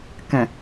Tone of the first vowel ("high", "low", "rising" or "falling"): low